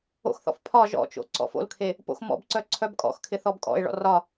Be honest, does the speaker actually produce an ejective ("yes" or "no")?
yes